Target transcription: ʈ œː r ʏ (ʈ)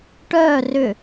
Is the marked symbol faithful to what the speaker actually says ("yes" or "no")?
no